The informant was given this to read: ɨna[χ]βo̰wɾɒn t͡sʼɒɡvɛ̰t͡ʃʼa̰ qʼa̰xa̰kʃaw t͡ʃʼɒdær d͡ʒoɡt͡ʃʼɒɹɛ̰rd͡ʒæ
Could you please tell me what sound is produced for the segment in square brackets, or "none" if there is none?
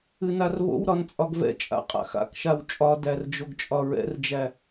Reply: r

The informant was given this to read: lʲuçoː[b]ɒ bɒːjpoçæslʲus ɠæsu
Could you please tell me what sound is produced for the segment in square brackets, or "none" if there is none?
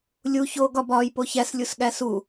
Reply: ɡ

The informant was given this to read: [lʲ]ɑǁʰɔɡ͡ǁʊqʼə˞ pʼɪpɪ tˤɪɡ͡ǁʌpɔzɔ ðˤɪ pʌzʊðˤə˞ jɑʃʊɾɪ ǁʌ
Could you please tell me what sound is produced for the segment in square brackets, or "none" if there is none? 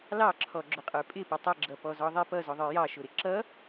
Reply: l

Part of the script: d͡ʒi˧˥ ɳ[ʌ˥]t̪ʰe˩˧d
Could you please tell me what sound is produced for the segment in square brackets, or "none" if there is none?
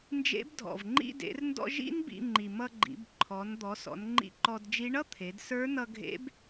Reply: ʌ˥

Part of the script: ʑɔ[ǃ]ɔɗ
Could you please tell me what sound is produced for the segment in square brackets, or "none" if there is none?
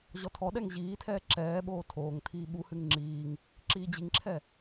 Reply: tʰ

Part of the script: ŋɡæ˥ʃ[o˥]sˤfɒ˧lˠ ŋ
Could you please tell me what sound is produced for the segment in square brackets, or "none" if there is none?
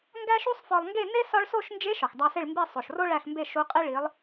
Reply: u˥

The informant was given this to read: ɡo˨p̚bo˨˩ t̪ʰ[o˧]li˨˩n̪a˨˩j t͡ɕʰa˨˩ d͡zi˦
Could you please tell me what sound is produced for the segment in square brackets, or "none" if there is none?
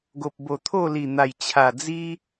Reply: o˥˧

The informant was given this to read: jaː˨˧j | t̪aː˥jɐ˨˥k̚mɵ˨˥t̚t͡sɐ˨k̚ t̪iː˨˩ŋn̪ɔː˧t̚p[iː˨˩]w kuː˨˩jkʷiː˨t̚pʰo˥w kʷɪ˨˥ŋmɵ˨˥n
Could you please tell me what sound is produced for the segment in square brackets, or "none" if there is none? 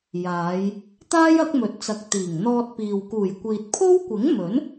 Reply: iː˨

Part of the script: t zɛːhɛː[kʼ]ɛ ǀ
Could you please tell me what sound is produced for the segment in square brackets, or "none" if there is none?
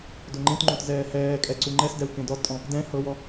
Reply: kʼ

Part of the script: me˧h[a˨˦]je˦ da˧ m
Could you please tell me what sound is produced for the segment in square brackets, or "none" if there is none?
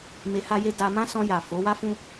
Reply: a˦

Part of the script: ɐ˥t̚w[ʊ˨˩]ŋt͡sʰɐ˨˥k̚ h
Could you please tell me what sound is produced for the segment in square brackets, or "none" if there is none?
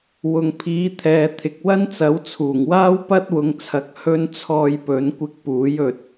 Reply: ʊ˨˧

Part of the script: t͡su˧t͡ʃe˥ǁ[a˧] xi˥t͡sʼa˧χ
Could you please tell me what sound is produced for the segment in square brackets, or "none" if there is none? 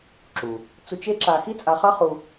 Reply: a˧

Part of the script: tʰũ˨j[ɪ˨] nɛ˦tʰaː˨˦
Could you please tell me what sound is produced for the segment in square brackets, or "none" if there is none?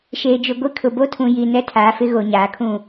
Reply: i˨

